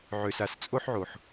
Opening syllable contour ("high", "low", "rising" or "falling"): high